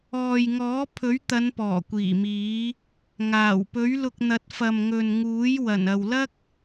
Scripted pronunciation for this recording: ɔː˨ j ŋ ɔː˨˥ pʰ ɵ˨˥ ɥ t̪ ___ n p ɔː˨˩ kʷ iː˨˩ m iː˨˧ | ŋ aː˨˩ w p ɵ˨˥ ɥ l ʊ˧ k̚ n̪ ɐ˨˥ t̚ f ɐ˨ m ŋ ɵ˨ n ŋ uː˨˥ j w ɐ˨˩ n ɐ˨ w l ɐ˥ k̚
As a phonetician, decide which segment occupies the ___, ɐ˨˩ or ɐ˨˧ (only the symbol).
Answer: ɐ˨˧